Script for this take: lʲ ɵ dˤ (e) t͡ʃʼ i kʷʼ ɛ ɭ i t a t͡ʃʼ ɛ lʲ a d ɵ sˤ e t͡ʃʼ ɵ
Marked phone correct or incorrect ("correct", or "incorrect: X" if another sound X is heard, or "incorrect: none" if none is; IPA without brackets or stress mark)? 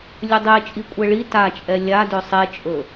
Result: correct